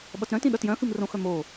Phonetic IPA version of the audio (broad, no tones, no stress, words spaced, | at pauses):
ɓʌtɾœ̃tĩ ɗʌtjœ̃xɨm rõxœ mo